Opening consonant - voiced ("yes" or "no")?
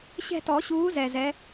no